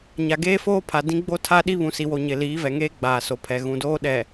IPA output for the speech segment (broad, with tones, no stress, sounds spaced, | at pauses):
ɲ a˨ ɡ eː˦ f oː˦ pʰ a˨ d ĩ˦ ɡ͡b o˦ tʰ a˦ ɗ i˦ β ũ˨ s i˨ w o˨ ɲ ɪ˨ l iː˨˦ v ɛ˨ ŋ eː˦ ɡ͡b aː˨ s o˨ pʰ ɛ˨ ɣ ũ˨ d oː˦ ɗ ɛ˨